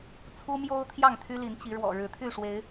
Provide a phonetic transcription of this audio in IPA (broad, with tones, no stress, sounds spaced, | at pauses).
t͡sʰ u˦ m j o˦ ʊ̯ t̪ʰ j ɑ˥˨ ŋ t̪ʰ y˦ l i˨˦ n t͡ɕ i˨˦ ɻ w ɔ̰˨˩ ɻ ɻ̩˨˦ t̪ʰ y˥˨ ʂ w e˨˦ ɪ̯